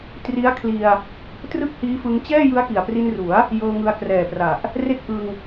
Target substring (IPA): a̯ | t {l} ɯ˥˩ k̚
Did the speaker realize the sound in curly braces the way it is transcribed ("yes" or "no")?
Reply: no